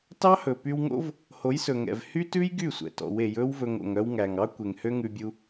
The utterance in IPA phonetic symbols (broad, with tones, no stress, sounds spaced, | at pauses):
t ɑ˦ h ɵ˨ p y˧ w ŋ o̰˦ v | h o˨˦ j s ɵ˨ ŋ ɛ̰˨ v h y˦ t ʉ˦ j ɡ y˦˨ sʷ ɛ̰˨ t ɔ̰˨˦ w e˨˦ j ɵ˦ w v ɵ˧ ŋ o̰˨ ŋ œ˧ w ŋ æ˨ ŋ ɑ˦ kʷ e˨ ŋ h ø˦ ŋ ʉ˧ bʲ u˧